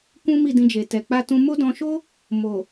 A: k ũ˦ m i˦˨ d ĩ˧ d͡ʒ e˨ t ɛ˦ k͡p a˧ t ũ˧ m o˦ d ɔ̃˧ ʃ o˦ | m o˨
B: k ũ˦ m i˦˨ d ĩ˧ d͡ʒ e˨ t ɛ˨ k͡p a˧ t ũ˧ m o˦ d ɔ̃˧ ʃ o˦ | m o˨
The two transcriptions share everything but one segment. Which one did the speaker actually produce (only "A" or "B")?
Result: B